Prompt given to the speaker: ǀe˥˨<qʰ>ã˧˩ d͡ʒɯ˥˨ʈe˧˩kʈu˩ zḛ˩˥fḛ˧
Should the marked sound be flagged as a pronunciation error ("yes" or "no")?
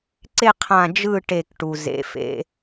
no